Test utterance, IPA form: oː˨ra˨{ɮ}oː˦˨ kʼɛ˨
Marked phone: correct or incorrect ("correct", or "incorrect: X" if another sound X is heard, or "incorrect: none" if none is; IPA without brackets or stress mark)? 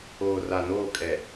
incorrect: n